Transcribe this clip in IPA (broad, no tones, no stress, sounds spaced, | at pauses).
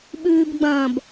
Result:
ɓ ʉː b ɡ͡b ɐ̃ː b